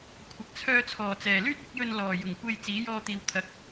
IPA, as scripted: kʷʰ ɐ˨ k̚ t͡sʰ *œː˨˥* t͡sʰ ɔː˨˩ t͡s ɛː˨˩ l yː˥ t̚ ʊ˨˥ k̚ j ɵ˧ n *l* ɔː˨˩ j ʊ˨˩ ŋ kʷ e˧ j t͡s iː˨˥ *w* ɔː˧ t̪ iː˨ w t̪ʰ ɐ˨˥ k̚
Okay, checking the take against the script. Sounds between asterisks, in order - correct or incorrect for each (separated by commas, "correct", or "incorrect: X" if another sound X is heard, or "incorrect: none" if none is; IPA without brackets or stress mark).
incorrect: œː˧, correct, incorrect: j